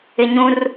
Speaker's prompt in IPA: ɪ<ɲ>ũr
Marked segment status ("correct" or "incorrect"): correct